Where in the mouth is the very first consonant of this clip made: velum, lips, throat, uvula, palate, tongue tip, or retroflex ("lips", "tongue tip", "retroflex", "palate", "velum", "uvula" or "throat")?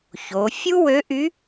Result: palate